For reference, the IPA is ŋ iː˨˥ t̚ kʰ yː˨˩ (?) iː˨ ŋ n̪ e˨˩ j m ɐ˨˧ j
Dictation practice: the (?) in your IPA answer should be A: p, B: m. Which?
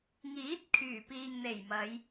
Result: A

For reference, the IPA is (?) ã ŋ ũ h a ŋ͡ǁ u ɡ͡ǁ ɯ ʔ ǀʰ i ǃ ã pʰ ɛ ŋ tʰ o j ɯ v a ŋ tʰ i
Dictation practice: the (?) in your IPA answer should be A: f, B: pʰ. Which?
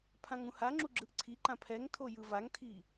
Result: B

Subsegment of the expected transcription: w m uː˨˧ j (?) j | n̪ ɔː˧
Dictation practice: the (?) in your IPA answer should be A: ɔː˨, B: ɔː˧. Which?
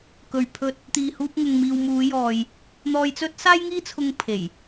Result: A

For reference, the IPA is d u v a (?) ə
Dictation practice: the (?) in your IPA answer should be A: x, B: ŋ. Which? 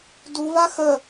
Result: A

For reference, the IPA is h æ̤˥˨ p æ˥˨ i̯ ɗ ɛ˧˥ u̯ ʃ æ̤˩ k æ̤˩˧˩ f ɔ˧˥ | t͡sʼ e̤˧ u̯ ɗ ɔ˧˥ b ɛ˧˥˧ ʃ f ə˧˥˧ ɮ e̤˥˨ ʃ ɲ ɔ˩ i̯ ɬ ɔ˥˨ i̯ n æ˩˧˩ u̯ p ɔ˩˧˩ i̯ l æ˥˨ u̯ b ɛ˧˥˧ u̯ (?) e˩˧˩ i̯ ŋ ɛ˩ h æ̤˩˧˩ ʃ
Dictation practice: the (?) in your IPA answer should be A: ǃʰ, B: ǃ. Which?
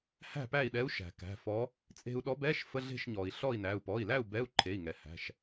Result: A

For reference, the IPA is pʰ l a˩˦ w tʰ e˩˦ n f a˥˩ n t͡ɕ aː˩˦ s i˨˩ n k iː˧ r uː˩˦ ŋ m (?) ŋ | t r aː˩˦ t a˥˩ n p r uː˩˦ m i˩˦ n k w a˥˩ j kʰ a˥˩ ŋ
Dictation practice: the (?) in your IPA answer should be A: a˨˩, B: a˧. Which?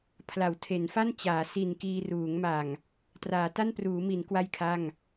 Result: A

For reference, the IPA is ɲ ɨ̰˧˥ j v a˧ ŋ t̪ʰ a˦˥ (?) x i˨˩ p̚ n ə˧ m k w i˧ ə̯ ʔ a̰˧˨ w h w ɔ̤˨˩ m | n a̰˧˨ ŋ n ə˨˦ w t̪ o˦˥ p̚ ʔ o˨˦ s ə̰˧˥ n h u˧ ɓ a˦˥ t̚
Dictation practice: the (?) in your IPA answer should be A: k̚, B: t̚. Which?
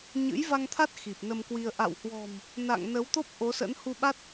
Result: B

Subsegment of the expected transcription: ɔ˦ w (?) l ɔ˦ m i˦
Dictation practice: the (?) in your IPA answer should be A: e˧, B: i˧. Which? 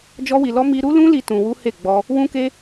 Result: B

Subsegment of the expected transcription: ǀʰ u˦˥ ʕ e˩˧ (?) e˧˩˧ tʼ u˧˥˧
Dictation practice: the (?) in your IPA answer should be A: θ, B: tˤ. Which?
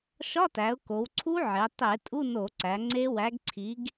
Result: B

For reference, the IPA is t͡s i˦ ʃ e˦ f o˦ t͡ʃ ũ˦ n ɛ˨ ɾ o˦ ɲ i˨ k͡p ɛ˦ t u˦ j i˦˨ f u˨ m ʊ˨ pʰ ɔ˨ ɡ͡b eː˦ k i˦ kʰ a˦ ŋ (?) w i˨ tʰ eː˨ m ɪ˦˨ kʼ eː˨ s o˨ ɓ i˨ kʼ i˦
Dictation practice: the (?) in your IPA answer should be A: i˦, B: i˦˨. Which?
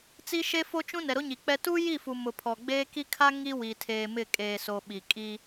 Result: A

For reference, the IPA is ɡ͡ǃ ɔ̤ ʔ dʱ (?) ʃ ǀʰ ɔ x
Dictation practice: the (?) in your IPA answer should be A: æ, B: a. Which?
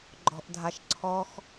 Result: B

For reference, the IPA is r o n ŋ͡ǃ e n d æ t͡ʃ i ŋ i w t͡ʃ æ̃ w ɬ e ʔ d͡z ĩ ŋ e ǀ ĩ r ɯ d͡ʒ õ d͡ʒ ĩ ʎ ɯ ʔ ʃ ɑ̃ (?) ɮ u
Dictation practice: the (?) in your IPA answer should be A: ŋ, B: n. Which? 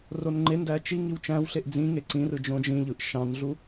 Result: B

